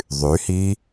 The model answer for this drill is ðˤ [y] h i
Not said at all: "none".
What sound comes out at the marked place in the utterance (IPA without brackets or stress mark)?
y